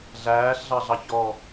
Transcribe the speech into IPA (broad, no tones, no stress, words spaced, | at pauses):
ɮæːɬɮɑɮɑ çɔ